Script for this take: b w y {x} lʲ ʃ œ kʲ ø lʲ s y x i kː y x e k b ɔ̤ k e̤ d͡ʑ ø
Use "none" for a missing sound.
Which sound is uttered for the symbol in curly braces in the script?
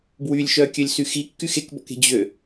none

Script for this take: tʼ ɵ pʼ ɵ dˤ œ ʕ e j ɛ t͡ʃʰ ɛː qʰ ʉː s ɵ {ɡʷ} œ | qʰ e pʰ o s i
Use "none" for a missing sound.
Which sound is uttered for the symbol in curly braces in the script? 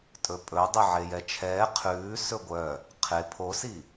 ɡʷ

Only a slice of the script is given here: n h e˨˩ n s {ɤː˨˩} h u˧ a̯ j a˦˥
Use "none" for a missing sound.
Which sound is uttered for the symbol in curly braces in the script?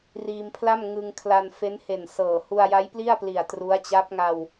ɤː˨˩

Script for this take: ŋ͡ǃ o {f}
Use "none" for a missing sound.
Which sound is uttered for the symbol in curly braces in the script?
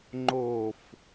f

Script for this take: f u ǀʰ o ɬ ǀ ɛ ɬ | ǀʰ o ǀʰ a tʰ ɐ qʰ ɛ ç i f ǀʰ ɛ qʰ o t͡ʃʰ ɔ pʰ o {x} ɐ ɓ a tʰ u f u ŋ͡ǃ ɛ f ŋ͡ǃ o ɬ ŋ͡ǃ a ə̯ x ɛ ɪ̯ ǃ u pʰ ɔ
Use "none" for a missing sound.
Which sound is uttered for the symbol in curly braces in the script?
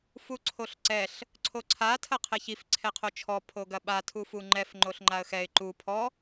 ɡ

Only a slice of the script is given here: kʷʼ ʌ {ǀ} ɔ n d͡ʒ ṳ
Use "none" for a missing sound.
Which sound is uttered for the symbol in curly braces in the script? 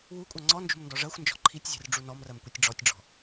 ŋ͡ǀ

